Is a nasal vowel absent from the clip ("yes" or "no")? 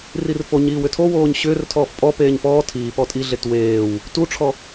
yes